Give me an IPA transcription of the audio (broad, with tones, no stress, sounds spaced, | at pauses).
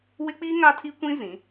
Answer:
w ɪ˦ k͡p iː˦ ŋ a˦ tʰ i˦ kʷ ĩ˦ z ĩ˨˦